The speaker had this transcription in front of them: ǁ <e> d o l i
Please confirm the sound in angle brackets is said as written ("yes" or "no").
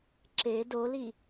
yes